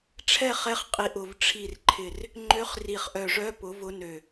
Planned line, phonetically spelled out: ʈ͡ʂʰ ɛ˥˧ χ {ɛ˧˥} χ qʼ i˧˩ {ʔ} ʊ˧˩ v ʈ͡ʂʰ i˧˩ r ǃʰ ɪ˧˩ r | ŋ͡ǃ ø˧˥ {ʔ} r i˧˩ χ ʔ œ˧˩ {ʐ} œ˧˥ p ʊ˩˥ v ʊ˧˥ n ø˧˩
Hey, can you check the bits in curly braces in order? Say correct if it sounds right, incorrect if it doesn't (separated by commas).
correct, correct, incorrect, correct